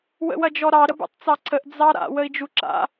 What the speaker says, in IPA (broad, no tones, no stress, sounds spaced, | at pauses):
w ə̰ w ɐ d͡ʒ ɔ ɾ ɑ ɾ ə b ṵ tˤ t͡s ɑ ǀʰ ə ʔ d͡z ɑ ɾ a̰ w ə i̯ d͡ʒ u ǁ a̰